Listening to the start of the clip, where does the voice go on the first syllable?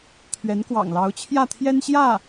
rising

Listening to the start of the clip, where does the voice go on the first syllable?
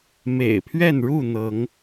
low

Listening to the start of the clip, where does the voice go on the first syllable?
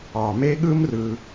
low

